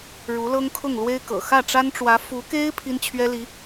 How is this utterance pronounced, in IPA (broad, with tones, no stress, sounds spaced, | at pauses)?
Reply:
ɻ u˧˥ l ɤ˥ ŋ kʰ ʊ˥˩ ŋ l w e˥ ɪ̯ k ɤ̰˨˩ x ä˥˩ ʈ͡ʂ a˥ n ʈ͡ʂ w ä˧˥ f u˧˥ k e˥ ɪ̯ pʰ i˥ n t͡ɕʰ ɥ ɛ˥ l i˧˥